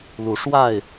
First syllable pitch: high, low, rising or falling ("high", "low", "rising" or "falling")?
rising